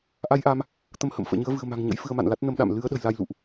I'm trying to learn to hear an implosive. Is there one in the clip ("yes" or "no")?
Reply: yes